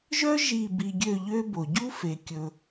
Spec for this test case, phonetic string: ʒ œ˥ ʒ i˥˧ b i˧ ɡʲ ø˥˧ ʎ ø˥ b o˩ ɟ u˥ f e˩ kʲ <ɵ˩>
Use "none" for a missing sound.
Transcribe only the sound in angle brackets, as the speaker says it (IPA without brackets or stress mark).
ɵ˩